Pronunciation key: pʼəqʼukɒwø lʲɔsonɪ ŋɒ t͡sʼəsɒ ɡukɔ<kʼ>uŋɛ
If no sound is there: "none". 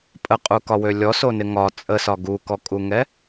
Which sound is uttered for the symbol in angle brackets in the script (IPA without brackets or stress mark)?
kʼ